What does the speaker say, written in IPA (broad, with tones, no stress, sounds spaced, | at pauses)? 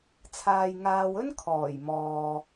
t͡sʰ aː˨ j ŋ aː˨ w ɵ˥ n kʰ ɔː˨˩ j m ɔː˨